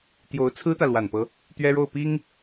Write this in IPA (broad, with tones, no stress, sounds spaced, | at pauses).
t̪ j o˧˥ ʊ̯ t͡sʰ ɹ̩˥ t̪ ä˨ l w a˨˩ n p ɤ˦ | t̪ ɥ ɛ˥ ɻ o˥˩ ʊ̯ p i˥ ŋ